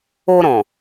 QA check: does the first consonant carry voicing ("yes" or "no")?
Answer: yes